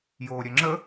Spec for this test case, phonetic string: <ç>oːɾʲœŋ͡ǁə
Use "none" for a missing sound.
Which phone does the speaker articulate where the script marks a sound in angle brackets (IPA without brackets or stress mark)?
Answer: j